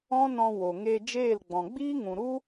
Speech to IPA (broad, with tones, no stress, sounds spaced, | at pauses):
ɔ̃˦ n ɔ̃˧ w o˨ ŋ eː˧ d͡ʒ eː˦˨ l ɡ͡b ɔ̃˨ ɡ͡b iː˦ ŋ ũ˨ ɾ u˦